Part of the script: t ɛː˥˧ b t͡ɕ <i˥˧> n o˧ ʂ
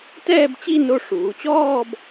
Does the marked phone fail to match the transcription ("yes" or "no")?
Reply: no